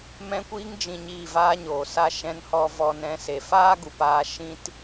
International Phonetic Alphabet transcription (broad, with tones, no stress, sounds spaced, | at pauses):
m ɛ̃˧ kʷ iː˧ ŋ d͡ʒ ĩ˨ ɲ iː˦˨ v aː˦ ɲ oː˨ s a˦ ʃ ɛ̃˧ n h ɔ˧ v ɔ˧ n ɛ̃˧ s e˨ f aː˦ ɡ u˨ p aː˧ ʃ ĩ˦ t